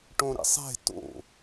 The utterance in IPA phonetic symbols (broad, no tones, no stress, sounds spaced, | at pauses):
ʈ õ ɾ ḭ sˤ e̤ t o̰